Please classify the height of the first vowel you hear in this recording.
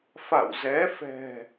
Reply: low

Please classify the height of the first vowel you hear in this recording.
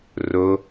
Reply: mid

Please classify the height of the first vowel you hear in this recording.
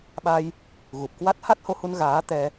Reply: low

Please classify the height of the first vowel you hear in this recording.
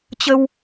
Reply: mid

